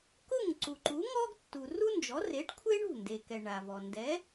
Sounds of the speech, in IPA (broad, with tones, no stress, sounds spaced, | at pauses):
k ʊ˥˩ ŋ ǀ u˩ ǃ u˩˥ ŋ ɔ˥ ɡ tː u˩ r u˥ n d͡ʒ ɔ˩˥ r e˩˥ ʈ kʷʰ e˥ ɳ ṳ˥˩ n d e˩ k ɛ˩ ɳ a˩ v ɔ˩ n d ɛ˩˥